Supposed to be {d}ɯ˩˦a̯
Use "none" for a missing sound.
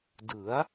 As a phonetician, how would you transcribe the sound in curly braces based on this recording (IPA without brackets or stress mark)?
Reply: d